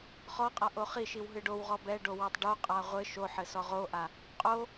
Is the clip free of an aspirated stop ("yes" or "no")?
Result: yes